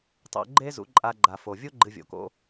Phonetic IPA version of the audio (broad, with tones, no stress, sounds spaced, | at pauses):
tˤ o̰˧ ɡ͡ǃ e˦ z ṵ˨˦ ǃʼ a˧ ɡ͡ǃ a˨ f o˨ vʲ u˦ ɡ͡ǃ ɨ˧ vʲ o̰˨ k o̰˦